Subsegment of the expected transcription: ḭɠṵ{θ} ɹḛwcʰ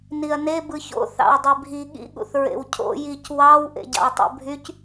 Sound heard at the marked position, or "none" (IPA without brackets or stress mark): θ